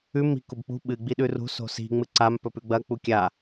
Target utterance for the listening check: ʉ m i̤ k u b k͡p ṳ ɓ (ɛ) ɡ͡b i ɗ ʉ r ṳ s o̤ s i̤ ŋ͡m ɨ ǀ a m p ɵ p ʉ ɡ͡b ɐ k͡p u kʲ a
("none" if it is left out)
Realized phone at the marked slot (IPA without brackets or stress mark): ɨ